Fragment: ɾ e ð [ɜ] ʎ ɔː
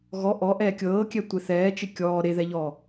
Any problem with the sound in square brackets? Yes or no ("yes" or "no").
yes